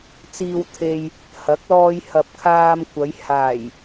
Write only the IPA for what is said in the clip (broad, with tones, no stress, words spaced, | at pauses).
t͡siː˧wt̪ʰe˧j | hɐ˨˥k̚ lɔː˧jhɐ˨p̚ kʰaː˧mkʷɐ˨˧j haː˨˩j